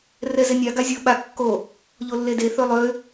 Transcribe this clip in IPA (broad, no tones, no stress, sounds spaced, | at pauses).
r ɛ z e nʲ a ɡ a zʲ o ɓ a kː o | ʎ o lː e d e θ ø lˠ ø